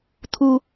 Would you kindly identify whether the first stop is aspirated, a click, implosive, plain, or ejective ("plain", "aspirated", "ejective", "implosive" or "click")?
aspirated